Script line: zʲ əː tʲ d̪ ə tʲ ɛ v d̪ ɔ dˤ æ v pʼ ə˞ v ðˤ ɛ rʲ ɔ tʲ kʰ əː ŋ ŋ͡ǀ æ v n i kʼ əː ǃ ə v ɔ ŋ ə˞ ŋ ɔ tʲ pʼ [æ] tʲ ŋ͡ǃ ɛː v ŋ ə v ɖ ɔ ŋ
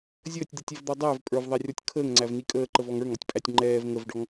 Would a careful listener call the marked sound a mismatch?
no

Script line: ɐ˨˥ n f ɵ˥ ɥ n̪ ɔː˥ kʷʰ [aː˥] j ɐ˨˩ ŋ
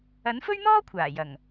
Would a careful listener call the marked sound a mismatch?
yes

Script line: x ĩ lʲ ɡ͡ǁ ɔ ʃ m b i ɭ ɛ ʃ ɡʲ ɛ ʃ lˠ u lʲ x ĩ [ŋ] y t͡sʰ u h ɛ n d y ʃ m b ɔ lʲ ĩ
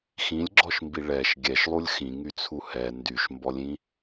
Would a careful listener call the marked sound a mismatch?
no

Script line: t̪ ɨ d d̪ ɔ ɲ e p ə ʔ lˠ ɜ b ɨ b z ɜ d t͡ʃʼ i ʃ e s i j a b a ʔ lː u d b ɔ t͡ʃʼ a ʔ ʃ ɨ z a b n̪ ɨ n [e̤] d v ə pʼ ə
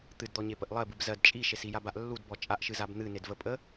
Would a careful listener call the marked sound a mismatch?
yes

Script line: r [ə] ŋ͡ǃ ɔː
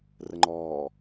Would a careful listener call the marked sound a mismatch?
no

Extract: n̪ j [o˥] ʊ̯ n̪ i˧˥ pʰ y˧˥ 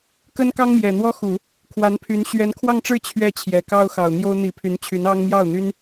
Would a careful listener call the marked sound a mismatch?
no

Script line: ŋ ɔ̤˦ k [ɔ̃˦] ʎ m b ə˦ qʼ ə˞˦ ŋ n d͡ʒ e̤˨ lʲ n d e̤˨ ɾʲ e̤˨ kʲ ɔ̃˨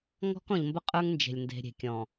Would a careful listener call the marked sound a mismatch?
yes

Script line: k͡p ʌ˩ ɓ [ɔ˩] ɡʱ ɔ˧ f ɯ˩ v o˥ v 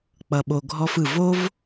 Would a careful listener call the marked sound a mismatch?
yes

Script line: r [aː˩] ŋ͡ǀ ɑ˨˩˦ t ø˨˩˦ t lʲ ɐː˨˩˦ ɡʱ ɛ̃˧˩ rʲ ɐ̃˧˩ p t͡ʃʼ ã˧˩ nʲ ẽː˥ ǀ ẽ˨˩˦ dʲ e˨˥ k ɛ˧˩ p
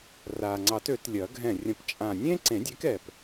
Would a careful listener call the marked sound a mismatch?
no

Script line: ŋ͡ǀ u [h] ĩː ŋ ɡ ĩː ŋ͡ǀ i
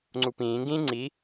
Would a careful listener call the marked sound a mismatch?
yes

